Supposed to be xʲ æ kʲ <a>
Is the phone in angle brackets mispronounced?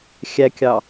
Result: yes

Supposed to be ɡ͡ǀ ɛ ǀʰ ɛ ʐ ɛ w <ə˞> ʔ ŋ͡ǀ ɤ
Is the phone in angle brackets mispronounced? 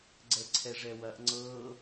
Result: yes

